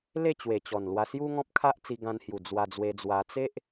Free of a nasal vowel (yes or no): no